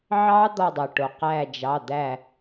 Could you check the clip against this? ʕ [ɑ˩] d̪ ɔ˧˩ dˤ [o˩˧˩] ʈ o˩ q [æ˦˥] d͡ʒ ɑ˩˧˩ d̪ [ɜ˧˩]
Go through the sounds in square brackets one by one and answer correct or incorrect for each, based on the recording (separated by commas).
incorrect, incorrect, incorrect, incorrect